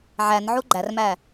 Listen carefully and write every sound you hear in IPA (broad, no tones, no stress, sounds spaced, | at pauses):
ʕ æ n ʕ u ɡ͡ǃ æ r m æ